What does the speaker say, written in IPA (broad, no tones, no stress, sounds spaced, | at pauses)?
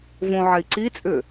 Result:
v õ ʕ ɛ i̯ ǀ i t͡sʼ ʏː